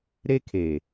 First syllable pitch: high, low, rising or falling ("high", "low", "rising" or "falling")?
high